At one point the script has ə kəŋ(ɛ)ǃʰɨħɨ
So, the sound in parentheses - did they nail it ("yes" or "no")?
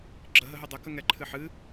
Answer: yes